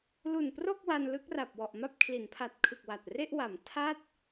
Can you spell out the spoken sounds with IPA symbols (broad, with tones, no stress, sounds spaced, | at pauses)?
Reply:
l u˨˩ n p r o˥˩ k̚ w a˧ n l ɯ˦˥ k̚ r a˨˩ p̚ w ɔ˨˩ ʔ m a˥˩ p̚ kʰ l i˩˦ n pʰ a˨˩ t̚ kʰ ɯ˨˩ k̚ w a˨˩ t̚ r e˥˩ ʔ w a˩˦ m tʰ a˦˥ t̚